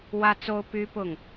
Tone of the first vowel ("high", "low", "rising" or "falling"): high